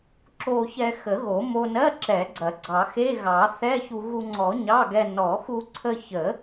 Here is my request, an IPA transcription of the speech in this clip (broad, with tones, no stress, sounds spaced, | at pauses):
ǁ o˧ ç ɛ˧ x ə˨˩˦ ɣ o˨˩˦ m o˧ n ɜ˧˥˧ ǁ ɛ˨˩˦ ɡ͡ǀ ɐ˨˩˦ ɡ͡ǀ ɑ˨˩˦ x e˧˥˧ ɣ ɑ˨˩˦ θ ɛ˧˥˧ ç u˧ ɣ u˧ ŋ͡ǀ ɔ˨˩˦ ɲ ɑ˧˥˧ ɡ ɛ˧ n ɔ˨˩˦ x u˧ ǀʰ ə˧ ç ə˨˩˦